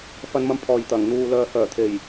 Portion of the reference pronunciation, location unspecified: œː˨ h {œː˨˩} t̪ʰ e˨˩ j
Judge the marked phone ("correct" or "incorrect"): correct